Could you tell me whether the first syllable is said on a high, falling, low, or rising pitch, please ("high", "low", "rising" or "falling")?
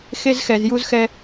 high